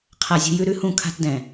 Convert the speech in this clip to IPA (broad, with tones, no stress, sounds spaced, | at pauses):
qʰ a˦ zʲ ṳ˦ j ʉ˦ ɾ ʉ˦ h ũ˦˨ kʰ a̤˦ t d ɛ̃˨